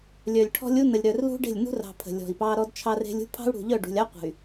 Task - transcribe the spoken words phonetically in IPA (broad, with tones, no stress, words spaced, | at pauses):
lʲœ˨lʲʈʰɔ̤˦lʲ u˦nə˨lʲ ɾœ˨rlṳ˦ ɖe̤˦˨lʲ nṳ˦rɑ̤˨ pʰə̤˨lʲɔ̤˨i̯pɑ˦ ɾɔ˦dt͡ʃʰɑ˦re̤˦lʲ ṳ˦pʰɑ̤˦u̯ɽṳ˨ʎœ˦˨ ɖṳ˨lʲɑ˦ qʷə̤˨y̯